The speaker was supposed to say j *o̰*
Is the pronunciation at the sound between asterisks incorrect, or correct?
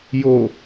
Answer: incorrect